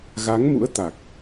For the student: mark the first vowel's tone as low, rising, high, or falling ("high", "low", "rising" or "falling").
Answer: rising